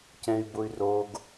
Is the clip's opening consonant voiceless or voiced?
voiceless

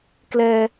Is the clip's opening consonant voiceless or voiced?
voiceless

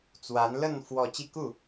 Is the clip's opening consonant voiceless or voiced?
voiceless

